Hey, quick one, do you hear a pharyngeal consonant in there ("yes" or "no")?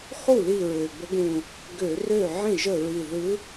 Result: yes